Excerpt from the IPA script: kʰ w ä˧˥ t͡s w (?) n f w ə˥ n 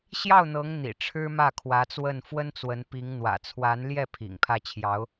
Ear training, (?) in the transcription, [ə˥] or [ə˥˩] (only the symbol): ə˥˩